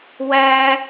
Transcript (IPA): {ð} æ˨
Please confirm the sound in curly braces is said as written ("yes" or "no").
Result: no